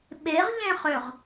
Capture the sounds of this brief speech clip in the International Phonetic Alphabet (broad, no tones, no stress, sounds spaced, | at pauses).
ɓ e ʁ ʎ ẽ χ ø ʁ